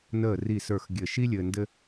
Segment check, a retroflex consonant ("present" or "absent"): absent